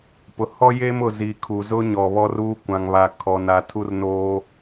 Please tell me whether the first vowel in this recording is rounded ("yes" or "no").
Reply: yes